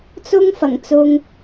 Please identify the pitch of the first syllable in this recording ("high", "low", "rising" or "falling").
high